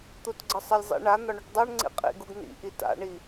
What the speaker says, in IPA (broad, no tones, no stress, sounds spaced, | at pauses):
t̪ u t ɡ͡ǀ ə sˤ ə lʲ zˤ ḭ ɳ a n̪ ɒ ɳ o ʈ dˤ a ɳ ŋ͡ǀ ḭ qʼ ḭ ɡ u ɡ n̪ ḭ ʔ i t a̰ ɳ i